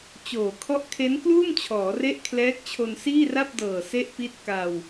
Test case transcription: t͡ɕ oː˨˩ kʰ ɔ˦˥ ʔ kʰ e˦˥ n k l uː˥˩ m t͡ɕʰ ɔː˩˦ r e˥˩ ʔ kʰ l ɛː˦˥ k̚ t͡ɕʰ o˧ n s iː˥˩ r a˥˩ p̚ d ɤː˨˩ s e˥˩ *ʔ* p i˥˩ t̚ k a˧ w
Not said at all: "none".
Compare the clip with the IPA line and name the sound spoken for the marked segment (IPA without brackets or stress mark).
ʔ